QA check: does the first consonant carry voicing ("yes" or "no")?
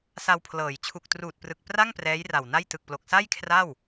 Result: no